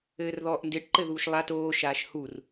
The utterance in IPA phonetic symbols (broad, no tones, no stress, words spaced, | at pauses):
ɘːrðɔːʔndɪʈ ǃɘðuːʃlˠat oː ʃaːʃhur